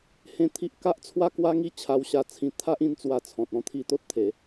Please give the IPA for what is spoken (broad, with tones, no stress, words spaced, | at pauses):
hẽ˧ t̪ʰi˦ʔ ka˦ʔt͡sʰwa˥˧ kwa˦ŋi˦ t͡ɕʰa˧wɕa˧t͡sʰĩ˧ t̪ʰa˦ʔĩ˥˧nt͡swa˧t͡sʰɔ̃˨t̚ ɔ̃˥˧t̪ʰi˧ t̪o˦t̚t̪ʰe˨˦